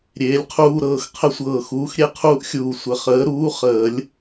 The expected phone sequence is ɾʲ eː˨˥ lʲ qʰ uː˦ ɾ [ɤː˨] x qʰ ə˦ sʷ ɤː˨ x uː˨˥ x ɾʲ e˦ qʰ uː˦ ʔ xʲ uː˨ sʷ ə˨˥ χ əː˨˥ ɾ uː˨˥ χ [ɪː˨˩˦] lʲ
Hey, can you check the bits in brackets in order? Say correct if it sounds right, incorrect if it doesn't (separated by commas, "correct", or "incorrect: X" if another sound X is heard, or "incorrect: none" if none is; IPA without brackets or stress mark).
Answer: correct, incorrect: əː˨˩˦